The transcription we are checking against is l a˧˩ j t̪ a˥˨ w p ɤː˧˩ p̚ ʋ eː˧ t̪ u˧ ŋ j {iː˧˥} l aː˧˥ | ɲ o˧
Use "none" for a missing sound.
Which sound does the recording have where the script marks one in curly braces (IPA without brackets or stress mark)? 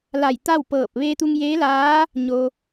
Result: eː˧˥